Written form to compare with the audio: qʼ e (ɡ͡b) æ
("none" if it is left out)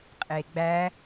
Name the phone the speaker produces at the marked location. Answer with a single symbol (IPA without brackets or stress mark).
ɡ͡b